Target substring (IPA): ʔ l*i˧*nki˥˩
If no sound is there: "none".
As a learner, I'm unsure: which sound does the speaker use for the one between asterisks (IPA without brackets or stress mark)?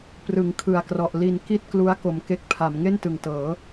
i˧